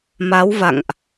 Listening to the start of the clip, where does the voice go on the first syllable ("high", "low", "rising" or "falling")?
rising